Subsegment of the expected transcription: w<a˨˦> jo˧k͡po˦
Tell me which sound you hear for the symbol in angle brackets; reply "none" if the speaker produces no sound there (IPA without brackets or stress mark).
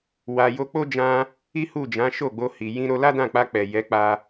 a˧